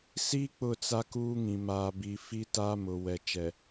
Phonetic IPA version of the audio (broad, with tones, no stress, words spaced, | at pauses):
si˦ k͡pʊ˦˨t͡sa˦ kuː˦ŋĩ˨maː˨bi˨ fi˦ taː˦mʊ˨ wɛ˨t͡ʃɛ˨